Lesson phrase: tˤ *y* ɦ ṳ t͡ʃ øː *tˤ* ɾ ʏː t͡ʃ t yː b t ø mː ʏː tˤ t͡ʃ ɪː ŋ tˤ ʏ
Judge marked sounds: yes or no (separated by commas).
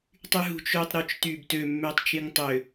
yes, yes